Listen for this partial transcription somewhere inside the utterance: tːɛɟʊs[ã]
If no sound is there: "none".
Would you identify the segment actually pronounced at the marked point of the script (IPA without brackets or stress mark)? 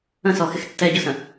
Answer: ə̃